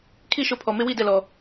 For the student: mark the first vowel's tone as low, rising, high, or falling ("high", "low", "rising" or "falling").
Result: falling